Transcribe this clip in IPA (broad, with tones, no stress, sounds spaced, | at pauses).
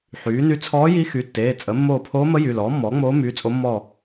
ħ yː˩˥ n y˧˥ t͡sʰ ɔː˧˥ j i˧˥ x y˩˧˩ tː eː˩˧˩ t͡sʼ ə˩˥ mː oː˦˨ pʰ oː˧˥ m ə˧˥ j y˩˧˩ l ɔː˩˥ mː ɔː˩˥ ŋ͡m oː˧˥ m yː˩˧˩ t͡sʼ o˧˥ mː ɔ˦˨